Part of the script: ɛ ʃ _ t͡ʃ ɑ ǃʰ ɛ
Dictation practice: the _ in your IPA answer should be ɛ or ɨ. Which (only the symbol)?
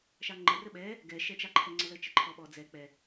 ɛ